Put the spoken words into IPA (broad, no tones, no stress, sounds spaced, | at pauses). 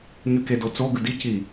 ɲ y k e d o t͡s o ɡ ʉ d i c i